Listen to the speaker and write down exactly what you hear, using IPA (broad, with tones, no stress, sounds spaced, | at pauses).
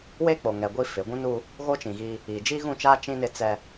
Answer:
w eː˦ k͡p o˨ ŋ ɛ˨ ɡʷ i˦ f ɪ˨˦ ɡʷ ũ˦ n u˦ | ɣ o˦ t͡ʃ ĩ˨ ɣ i˦ | iː˨ d͡ʒ iː˦ ɣ ũ˦˨ t͡ʃ aː˦ t͡ʃ ĩ˦ n ɪ˦ t͡s ɛ˦